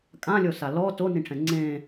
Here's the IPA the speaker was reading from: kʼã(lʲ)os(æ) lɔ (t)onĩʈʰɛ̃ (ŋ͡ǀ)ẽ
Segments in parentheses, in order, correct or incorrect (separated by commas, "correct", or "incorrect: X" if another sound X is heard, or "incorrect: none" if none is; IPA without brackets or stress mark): correct, incorrect: a, correct, correct